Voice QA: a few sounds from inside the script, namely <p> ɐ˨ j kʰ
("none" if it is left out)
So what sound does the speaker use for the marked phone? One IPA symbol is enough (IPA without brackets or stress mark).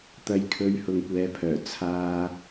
t̪